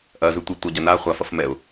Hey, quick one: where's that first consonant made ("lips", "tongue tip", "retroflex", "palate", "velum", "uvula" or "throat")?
throat